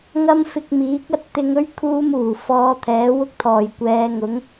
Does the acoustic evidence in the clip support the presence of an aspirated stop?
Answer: yes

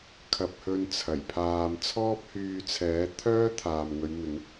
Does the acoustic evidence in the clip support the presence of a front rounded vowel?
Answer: yes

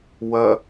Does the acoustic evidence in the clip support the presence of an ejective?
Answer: no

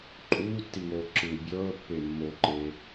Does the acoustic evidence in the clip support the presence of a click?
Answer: yes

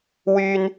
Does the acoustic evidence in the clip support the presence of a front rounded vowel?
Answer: yes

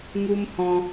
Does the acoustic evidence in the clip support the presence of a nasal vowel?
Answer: yes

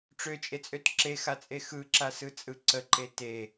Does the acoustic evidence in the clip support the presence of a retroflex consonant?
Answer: yes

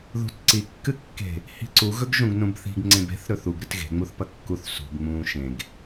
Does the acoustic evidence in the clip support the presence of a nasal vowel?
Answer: yes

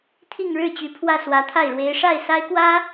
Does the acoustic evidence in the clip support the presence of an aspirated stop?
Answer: yes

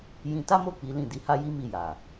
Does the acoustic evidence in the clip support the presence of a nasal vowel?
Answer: yes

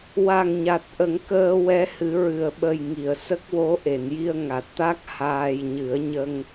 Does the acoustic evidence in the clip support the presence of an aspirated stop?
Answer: no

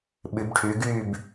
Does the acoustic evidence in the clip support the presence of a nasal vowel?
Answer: no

